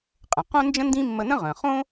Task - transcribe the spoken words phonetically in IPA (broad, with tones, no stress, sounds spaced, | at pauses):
qʼ ə̃˩ q õ˥ n d͡ʒ ə̃˥ n d ĩ˥ mː ə˧ n ə̃˥ ʁ ə̃˩ χ õ˥